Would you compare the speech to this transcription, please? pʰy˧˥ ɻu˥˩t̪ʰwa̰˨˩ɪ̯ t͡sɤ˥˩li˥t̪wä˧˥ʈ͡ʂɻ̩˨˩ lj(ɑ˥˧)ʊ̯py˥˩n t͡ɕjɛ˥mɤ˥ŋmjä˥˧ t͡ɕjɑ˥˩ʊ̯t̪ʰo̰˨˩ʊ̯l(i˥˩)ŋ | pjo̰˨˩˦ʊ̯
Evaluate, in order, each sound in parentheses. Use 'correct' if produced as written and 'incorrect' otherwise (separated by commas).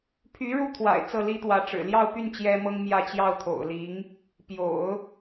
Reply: correct, incorrect